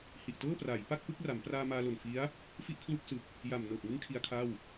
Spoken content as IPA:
h i˨˩ ʔ t ɤː˥˩ p r a˩˦ j p a˥˩ k̚ p ɯ˥˩ k̚ r a˩˦ m p r aː˧ m aː˧ l o˨˩ n f i˦˥ a̯ | f i˥˩ ʔ kʰ l u˥˩ k̚ s ɯ˨˩ k̚ | j a˨˩ m n ɤː˨˩ p̚ ŋ ɯ˦˥ ŋ kʰ i˦˥ a̯ kʰ a˥˩ w

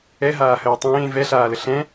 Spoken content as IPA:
ɛ ɦ aː h əː tˤ ẽː v ɛ ɬ aː l ə ɬ ɛ̃

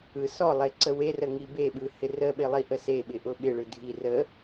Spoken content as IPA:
ɯ s ɔ lˠ e ǀ ə w e r ə ŋ i b e ɓ ɯ h ɪ r ə ɓ ɪ lˠ i ʔ ə s e ɓ ɪ ʔ ʊ ɓ ɪ ɭ ɯ dʱ i r ə

